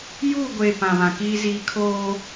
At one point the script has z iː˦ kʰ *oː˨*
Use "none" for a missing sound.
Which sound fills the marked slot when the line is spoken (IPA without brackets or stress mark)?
oː˦